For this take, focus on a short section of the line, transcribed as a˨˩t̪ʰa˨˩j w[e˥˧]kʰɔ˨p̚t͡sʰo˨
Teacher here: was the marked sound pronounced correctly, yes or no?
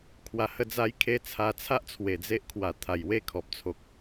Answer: yes